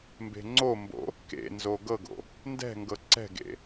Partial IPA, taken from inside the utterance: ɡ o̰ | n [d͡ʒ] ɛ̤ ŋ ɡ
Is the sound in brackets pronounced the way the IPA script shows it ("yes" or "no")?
no